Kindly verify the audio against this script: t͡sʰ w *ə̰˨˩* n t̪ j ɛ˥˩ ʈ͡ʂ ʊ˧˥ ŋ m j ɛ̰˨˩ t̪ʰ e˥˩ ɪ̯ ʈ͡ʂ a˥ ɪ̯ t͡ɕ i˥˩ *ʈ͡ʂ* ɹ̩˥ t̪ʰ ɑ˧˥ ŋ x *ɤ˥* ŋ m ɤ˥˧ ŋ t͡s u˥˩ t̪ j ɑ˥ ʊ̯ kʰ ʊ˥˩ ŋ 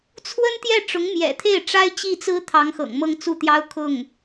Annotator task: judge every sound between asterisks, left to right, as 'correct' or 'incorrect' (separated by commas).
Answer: incorrect, incorrect, incorrect